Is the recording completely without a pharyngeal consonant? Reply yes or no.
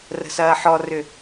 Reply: no